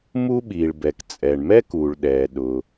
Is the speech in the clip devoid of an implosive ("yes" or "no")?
no